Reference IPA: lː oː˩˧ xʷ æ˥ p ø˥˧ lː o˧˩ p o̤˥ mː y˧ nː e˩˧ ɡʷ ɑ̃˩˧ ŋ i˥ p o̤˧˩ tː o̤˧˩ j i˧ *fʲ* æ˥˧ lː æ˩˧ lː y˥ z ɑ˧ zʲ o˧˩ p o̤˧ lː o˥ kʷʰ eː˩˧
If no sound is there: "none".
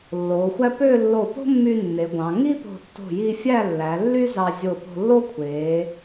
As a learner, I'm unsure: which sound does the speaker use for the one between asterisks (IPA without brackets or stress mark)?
fʲ